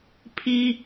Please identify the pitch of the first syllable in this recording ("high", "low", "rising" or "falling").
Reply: high